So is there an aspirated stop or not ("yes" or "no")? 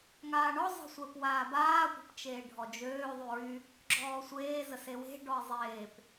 no